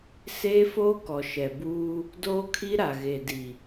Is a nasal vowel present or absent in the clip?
absent